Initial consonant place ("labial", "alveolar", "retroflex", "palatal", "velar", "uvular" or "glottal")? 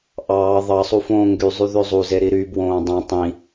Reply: glottal